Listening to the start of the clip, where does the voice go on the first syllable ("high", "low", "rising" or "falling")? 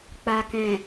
low